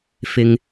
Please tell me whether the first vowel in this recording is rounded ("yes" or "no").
no